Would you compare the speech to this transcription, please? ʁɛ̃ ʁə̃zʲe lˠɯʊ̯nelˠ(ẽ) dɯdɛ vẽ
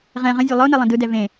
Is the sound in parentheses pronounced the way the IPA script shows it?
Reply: no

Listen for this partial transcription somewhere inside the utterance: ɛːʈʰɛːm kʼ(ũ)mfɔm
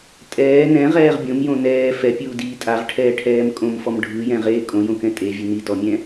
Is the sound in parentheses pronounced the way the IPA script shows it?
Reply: no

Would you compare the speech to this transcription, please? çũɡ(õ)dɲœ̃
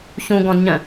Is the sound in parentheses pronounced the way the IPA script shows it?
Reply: no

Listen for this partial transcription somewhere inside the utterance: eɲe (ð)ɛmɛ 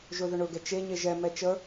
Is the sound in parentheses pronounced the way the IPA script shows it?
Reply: no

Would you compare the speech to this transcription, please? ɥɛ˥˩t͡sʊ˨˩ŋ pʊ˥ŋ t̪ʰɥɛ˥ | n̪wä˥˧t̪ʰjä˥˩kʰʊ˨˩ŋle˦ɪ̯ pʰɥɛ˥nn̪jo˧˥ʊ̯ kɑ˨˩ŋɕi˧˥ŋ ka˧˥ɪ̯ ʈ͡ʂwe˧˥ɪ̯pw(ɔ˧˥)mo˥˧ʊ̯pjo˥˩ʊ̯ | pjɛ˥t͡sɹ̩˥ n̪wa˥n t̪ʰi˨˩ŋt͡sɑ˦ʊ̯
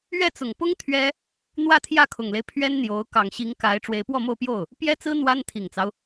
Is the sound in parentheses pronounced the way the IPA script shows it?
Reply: no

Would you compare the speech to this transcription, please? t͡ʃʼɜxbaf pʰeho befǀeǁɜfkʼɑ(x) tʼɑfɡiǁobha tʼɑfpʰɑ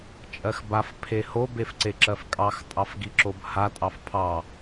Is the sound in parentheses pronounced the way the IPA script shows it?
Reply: yes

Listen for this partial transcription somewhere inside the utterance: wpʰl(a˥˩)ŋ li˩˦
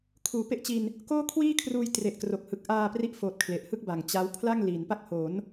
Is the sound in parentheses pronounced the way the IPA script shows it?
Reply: yes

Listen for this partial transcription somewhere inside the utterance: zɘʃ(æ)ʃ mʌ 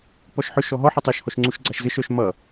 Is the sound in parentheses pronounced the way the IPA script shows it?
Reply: no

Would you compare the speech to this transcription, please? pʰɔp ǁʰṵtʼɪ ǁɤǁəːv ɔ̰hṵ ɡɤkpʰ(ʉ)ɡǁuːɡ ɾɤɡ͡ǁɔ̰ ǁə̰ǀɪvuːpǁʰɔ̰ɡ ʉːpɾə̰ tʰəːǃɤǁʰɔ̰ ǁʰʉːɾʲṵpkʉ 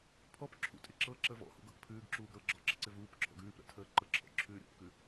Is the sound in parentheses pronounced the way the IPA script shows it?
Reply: no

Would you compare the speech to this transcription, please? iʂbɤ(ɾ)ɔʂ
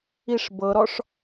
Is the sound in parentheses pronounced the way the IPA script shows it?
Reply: yes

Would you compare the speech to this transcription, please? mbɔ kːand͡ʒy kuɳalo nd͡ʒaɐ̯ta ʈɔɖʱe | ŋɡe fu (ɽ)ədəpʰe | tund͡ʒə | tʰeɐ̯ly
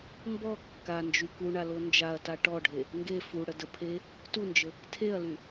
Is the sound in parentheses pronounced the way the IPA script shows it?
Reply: yes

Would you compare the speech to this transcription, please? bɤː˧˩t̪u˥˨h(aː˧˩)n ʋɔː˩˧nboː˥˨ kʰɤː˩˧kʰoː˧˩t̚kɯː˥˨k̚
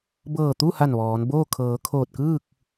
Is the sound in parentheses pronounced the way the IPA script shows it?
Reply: no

